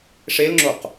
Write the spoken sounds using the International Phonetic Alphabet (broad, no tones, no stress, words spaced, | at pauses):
ʂelŋ͡ǁoq